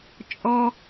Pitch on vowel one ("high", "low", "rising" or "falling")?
high